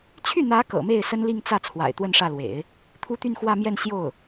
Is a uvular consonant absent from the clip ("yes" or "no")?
yes